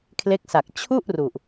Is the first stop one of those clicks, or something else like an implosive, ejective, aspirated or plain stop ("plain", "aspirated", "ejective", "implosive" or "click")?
aspirated